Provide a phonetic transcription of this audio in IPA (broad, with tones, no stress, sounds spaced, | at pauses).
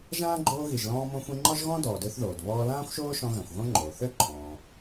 ʒ ãː˥ ɡ͡ǃ oː˦ ɣ i˨ ʒ l ɔ̃ː˦ m õ˦ xʷ ĩ˦ ŋ͡ǃ ɔ˥ ʒ ɣ ɔ̃˥ d ɔː˨ d ø˦ θ ð oː˩ d β ɔː˦ l ãː˥ xʷ ʃ oː˥ ʃ ɔ̃˦ ɣ ã˨ xʷ ɣ õ˥ ŋ͡ǃ oː˩ θ ø˥ ǃʰ ɔ̃ː˩